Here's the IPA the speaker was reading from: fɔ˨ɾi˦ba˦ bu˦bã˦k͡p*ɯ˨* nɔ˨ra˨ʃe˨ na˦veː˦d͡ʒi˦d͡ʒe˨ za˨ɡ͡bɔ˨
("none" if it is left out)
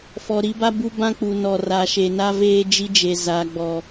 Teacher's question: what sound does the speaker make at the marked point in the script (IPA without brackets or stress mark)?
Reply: u˨